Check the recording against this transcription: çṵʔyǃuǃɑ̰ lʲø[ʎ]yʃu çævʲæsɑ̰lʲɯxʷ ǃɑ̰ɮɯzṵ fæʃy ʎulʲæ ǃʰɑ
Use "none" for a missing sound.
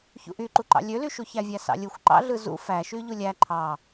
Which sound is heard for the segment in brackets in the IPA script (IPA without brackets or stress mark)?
l